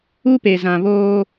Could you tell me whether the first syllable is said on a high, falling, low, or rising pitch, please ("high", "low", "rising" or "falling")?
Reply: high